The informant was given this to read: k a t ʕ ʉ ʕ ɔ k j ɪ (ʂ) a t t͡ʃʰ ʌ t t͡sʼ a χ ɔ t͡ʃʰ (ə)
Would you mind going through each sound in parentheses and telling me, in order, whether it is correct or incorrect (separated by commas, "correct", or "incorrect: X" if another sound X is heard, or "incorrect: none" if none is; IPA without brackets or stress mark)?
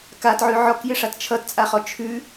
correct, incorrect: ʉ